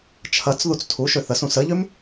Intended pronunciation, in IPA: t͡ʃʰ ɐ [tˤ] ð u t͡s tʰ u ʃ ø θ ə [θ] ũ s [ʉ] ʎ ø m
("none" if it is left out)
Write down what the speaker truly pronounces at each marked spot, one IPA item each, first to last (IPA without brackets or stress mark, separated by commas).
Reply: t͡s, s, ə